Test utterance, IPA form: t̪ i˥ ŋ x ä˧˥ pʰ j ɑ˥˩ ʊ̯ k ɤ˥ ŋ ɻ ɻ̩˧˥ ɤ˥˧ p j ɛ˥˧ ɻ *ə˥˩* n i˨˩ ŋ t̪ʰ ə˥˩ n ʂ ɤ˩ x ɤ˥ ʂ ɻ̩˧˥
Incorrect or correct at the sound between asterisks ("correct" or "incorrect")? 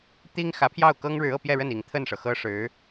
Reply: correct